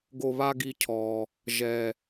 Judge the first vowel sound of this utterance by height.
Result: mid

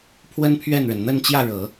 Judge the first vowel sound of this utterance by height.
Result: mid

